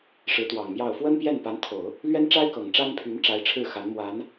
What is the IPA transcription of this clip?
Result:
ʂ ɻ̩˧˥ t̪ w ɑ˨˩ ŋ m j ɑ˥˩ ʊ̯ f w ə˥ n p j ɛ˥˩ n p a˧˥ n t̪ʰ o˨˩˦ ʊ̯ | l ɥ ɛ˥ n ʈ͡ʂ a˥ ɪ̯ k ɤ˨˩ ŋ ʈ͡ʂ a˥ n pʰ y˧˥ n ʈ͡ʂ a˧˥ ɪ̯ ʈ͡ʂʰ ɻ̩˥˩ x a˧˥ n m w a˧˥ n

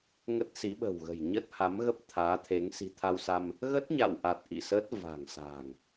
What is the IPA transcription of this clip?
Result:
ŋ ə˦˥ t̚ s i˨˦ ɓ ə̤˨˩ w ɣ ə̤˨˩ j ɲ ə˦˥ t̚ h a˨˦ m ɣ ə˦˥ p̚ t̪ʰ aː˨˦ t̪ʰ e˨˦ ŋ s i̤˨˩ t̪ʰ a˧ w s a˧ m | ɣ ə˦˥ t̚ ɲ a̰˧˨ w ʔ a˨˩ t̚ ʔ ḭ˧˨ s ə˦˥ t̚ v a̤˨˩ ŋ s a̤ː˨˩ ŋ

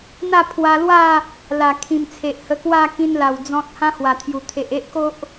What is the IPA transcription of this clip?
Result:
n̪ a˥˧ pʰ w a˧ l w a˥˧ | l a˨˩ kʰ ĩ˨˩ m t͡sʰ e˨ ʔ h ə˧ k w a˥˧ k ĩ˧ n l a˨˩ w d͡z ɔ̃˦ t̚ h ã˦ h w a˨˩ t̪ʰ j u˨˩ t̪ʰ e˨ ʔ e˦ ʔ k o˦ ʔ

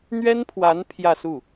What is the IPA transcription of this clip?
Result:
n̪ ɥ ɛ˥ n pʰ w a˧˥ n pʰ j ä˥˧ s u˥˩

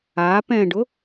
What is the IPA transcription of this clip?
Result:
a p ɛ̃ ɖ ʊ

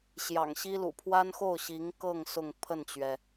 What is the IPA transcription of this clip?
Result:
ɕ j ɑ̰˨˩ ŋ ɕ i˥ l ṵ˨˩ pʰ w a˥ n x o˥˩ ʊ̯ ɕ i˧˥ ŋ k ɤ˥˧ ŋ s ʊ˥˧ ŋ pʰ ə˥˩ n t͡ɕ ɥ ɛ˩

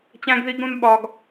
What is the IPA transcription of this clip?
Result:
t͡ɕ æ̃˦ ɡ ð i˦ ɡ ɾ ũ˦ n ɓ ɒ˦ ɡ

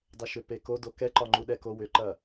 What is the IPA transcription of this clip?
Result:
dˤ ɛ ʃ ʏ p e k o d o k ɛ ǃ ɒ ŋ͡ǃ u ɗ ɛ k o w ʏ ǃ ɐ

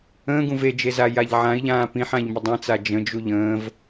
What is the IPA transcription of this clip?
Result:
ə̃ː ɡ ũ v e d͡ʒ e z a j a ʎ ʕ ã i̯ ʎ ãː p ĩ ħ ã ʎ m ə dˤ ã t͡s a d͡ʒ ə̃ d͡ʒ u ʎ ə̃ː v

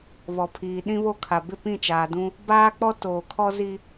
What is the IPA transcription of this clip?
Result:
β ɔ˨ pʰ iː˨ ɗ ĩ˦ β o˦ kʰ a˨ b ɪ˦˨ p ĩ˦˨ t͡ʃ aː˨ d ũ˦ | b aː˦ k͡p ɔ˦ t oː˨ kʰ ɔ˦ z i˦

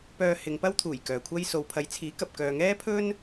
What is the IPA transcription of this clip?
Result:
p œː˧ h ɪ˨˧ ŋ p ɐ˥ w t̪ʰ uː˨˩ j k œː˨ kʷʰ ɐ˥ j s o˨ w pʰ ɐ˨˧ j t͡sʰ iː˨˥ k ɐ˨ p̚ k œː˨ ŋ ɛː˥ pʰ ɵ˥ n

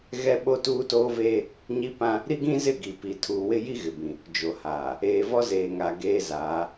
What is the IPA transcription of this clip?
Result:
ɣ ɛ˦ ɓ o˦ t uː˦ t oː˦ v eː˦ | ɲ i˦ p ã˦ | ɾ i˦ ɡ ĩ˦ z ɪ˦˨ ɡ i˨ p i˨ tʰ uː˨ w ɪ˦ j i˦ ɣ ɪ˨ b ĩ˨ | d͡ʒ o˨ h aː˨ | eː˨ v ɔ˦ z eː˨ ŋ a˨ ɡ eː˦ z aː˨˦

